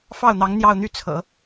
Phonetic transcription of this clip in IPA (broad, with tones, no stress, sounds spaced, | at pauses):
f ɑ˥˩ ʊ̯ n̪ ɑ˧˥ ŋ n̪ j ɑ˥˧ ʊ̯ n̪ y˥˩ t͡sʰ ɤ̰˨˩˦